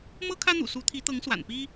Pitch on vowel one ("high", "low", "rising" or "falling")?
high